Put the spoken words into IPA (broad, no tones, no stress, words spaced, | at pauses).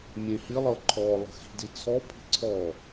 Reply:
mʲẽhilˠɤ ǃʰɔlˠə̤ xi̤di t͡sʰɔpʰi̤ ǀʰɔ